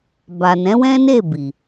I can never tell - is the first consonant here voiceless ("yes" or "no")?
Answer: no